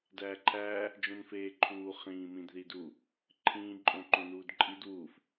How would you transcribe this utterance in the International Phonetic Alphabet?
d æː ǃʰ æː | d͡ʒ õ n f eː ǃʰ uː χ ĩː m ĩ d ð i d u | ǃʰ ĩː ǃʼ õ ǃ õ n uː d ǃʼ i d w uː f

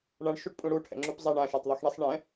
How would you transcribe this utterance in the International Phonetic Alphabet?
ɳ ã ɳ ʃ u ʈ pʼ ũ ɽ u ʈʰ ɛ̰ ŋ͡ǁ u p zˤ a ɳ ã ʃ a tˤ ðˤ i x ɳ i sˤ ɳ ɛ̃

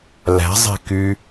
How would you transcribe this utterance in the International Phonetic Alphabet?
l æ̤ zˤ e̤ k y

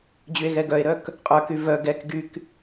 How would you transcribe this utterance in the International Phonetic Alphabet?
d͡ʑ y e̯ ɣ ɛ ɡ œ e̯ ɾ œ k | qʼ œ k y v œ ɡ ɛ k ɡ y k

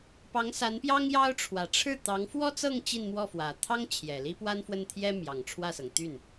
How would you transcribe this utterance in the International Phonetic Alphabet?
p ɑ˧˥ ŋ s a˧˥ n p j ɑ˥ ŋ j ɑ˥ ʊ̯ ʈ͡ʂʰ w ä˨˩ ʈ͡ʂʰ ɻ̩˥˩ t̪ ɑ˧˥ ŋ f w ɔ˥ t͡s ɤ˥˧ ŋ t͡ɕ i˥˧ n m w ɔ˥˩ f w ä˨˩ t̪ʰ ɑ˥ ŋ t͡ɕʰ j ɛ˨˩ l i˥ p w a˥ n f w ə˥˩ n t̪ʰ j ɛ˥ m j ɑ˨˩ ŋ ʈ͡ʂʰ w ä˥˩ s ɤ˩ ŋ t̪ y˥˩ n

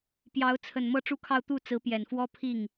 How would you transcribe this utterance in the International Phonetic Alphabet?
p j ɑ˧˥ ʊ̯ t͡sʰ ə˨˩ n m ɤ˥˧ ʈ͡ʂ u˥˧ kʰ ɑ˥˧ ʊ̯ t̪ u˥˩ t͡s ɹ̩˧˥ p j ɛ˨˩ n f w ɔ˥ pʰ i˥˩ ŋ

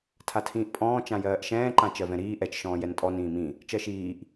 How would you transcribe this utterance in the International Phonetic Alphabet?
tʰ a tʰ ĩː ʔ pʼ ɔ̃ː t͡ʃ ã j ɜː ʔ ʃ ɛ̃ː ǃ ã t͡ʃ ɜ v ɛ̃ ɾ iː ʔ ɛ t͡ʃ ʃ ɔ̃ː j ɛ n tʼ ɔ n ĩː m ĩ | t͡ʃ ɜ ʃ iː ʔ

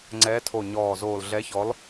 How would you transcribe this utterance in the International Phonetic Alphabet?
ŋ͡ǀ ɛː˨˦ tʰ o˨˩ ɲ ɔː˨˩ z oː˨˩ l ɮ ɛ˨˦ ç ɔ˨˦ l

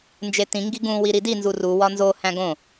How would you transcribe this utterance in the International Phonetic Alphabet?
n d͡ʒ e t ĩ ŋ ɡ i ɡ ũ w i ɾ i d i n z u r u w ɒ n z o h æ̃ ɡ õ

